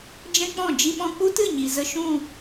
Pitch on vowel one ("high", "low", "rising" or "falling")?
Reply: high